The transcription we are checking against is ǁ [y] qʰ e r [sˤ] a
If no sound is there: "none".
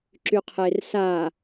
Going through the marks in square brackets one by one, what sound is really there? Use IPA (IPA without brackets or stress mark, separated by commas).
y, s